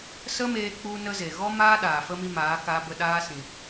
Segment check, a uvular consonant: absent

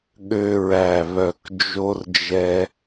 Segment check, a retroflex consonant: absent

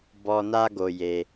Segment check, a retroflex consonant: absent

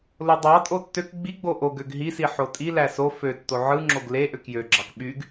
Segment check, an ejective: present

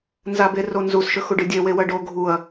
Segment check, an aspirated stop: absent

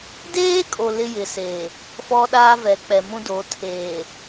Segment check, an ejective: present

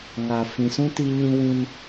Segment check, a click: absent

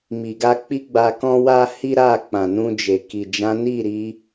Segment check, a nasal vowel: present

